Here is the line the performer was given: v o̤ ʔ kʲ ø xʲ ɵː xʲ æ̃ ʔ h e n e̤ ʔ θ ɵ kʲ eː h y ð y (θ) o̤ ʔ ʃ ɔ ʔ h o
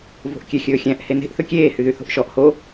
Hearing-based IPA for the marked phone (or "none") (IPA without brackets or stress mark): θ